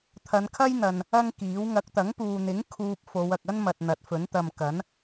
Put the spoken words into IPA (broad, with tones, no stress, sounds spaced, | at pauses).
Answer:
t̪ʰ ɐ˨˧ n kʰ ɐ˥ j n̪ ɐ˨ n | ɐ˥ ŋ k iː˨˥ w ŋ ɐ˨˥ k̚ t̪ ɐ˨˥ ŋ p uː˨ n̪ ɪ˨˥ ŋ kʰ uː˧ p̚ f o˨˧ w ɐ˨ k̚ ɐ˥ n m ɐ˨ t̚ n̪ ɐ˨˥ t̚ f ɵ˨˥ n t̪ ɐ˨ m k ɐ˨˥ n